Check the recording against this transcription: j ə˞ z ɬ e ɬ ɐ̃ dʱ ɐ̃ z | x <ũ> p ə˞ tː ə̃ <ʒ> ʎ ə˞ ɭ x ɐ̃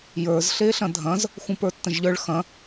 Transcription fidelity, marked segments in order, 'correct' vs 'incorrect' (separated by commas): correct, correct